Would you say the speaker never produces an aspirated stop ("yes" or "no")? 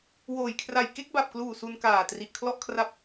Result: no